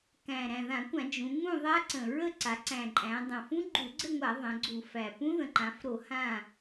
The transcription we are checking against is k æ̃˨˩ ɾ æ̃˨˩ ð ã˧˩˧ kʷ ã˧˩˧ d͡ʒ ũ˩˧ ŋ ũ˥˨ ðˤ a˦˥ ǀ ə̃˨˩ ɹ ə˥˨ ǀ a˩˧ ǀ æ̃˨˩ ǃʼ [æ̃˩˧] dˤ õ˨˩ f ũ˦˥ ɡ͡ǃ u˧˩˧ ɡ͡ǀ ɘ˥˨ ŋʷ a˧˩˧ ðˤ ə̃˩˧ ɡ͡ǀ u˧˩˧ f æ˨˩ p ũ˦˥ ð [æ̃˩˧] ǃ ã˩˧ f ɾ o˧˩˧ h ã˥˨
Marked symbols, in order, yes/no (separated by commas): yes, no